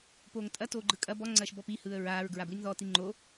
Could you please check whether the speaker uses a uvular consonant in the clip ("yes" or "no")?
no